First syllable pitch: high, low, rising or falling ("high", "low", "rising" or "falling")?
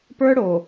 high